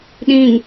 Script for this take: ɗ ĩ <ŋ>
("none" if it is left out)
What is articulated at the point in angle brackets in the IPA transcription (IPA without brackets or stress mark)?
ŋ